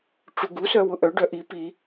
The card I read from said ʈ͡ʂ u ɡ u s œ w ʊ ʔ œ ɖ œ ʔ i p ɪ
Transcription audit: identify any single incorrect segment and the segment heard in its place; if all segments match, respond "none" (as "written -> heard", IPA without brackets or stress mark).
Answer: ɪ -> i